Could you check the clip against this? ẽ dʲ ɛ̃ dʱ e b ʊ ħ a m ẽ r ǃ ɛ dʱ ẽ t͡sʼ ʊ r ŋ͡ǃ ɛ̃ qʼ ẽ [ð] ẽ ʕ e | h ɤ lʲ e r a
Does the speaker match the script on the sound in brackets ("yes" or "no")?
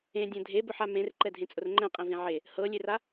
no